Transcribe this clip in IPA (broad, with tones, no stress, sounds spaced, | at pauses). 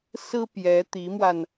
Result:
s ɹ̩˥ p j ɛ˧˥ t̪ i˧˥ m w a˧ n